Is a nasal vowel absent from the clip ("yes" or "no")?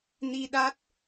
yes